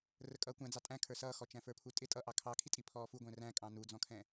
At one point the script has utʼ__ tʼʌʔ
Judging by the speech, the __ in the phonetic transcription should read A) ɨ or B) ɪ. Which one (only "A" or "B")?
B